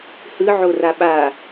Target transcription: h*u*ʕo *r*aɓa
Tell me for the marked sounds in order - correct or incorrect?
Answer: incorrect: ɯ, correct

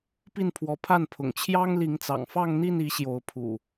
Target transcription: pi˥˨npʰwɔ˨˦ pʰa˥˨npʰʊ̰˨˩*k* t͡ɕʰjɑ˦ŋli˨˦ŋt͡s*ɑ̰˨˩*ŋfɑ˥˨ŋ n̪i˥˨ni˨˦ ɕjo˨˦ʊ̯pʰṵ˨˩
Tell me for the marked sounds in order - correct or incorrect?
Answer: incorrect: ŋ, correct

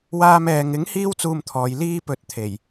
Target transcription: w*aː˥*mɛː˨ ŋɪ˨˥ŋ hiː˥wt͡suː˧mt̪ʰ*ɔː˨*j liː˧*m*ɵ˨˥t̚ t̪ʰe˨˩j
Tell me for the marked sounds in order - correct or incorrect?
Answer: incorrect: aː˧, correct, incorrect: p

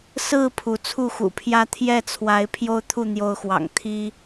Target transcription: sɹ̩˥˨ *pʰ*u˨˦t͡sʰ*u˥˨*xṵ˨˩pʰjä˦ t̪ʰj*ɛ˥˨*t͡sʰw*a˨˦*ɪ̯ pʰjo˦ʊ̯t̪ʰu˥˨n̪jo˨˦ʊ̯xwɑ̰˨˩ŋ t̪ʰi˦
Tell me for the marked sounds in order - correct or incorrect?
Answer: correct, correct, correct, correct

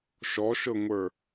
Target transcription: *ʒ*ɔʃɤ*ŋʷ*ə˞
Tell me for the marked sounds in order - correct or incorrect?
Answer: incorrect: ʃ, correct

